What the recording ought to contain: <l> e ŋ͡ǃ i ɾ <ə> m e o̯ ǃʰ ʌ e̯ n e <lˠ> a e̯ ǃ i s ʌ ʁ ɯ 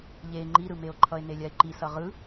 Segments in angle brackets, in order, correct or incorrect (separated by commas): incorrect, incorrect, incorrect